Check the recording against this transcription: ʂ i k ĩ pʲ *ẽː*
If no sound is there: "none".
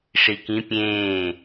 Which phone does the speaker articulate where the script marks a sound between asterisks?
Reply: ẽː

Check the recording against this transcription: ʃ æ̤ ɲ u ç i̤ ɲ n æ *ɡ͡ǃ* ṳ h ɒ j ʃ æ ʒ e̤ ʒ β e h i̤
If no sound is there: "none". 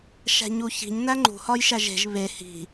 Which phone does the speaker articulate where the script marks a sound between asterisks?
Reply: ŋ͡ǃ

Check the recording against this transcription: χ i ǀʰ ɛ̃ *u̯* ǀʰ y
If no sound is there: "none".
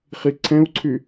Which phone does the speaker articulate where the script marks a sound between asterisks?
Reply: u̯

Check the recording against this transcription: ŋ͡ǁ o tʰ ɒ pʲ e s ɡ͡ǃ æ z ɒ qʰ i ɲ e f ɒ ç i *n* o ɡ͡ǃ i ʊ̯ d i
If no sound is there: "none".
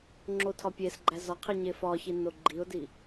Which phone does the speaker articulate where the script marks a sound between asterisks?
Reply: n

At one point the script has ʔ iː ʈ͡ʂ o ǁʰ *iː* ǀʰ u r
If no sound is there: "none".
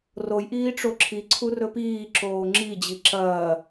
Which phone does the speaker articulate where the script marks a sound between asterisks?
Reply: i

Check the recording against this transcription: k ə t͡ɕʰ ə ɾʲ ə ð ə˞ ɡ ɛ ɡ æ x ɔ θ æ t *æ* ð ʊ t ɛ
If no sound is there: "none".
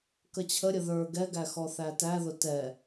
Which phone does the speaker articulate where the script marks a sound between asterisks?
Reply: æ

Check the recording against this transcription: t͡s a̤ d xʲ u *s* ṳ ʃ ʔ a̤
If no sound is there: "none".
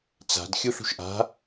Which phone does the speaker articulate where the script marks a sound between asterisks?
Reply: ɬ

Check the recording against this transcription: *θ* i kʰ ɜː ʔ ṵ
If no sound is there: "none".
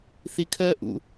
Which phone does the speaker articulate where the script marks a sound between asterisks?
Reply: θ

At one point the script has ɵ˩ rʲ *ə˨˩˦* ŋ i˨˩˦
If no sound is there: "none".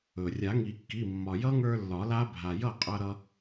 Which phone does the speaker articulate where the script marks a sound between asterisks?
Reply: a˨˩˦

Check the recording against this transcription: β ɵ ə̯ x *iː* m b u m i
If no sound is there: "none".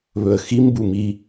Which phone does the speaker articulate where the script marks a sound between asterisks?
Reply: i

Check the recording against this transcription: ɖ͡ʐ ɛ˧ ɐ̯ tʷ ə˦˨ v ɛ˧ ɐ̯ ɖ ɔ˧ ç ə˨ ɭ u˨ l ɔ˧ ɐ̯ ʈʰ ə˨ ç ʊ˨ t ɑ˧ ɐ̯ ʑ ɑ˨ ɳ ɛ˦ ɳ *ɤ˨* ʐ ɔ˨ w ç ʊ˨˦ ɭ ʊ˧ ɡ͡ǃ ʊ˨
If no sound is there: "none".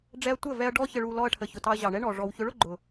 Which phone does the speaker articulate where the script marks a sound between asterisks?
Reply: ɔ˨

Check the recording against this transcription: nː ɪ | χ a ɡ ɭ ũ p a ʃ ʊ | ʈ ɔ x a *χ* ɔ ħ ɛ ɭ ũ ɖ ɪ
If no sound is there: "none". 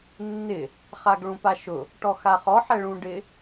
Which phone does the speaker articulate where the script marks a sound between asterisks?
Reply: χ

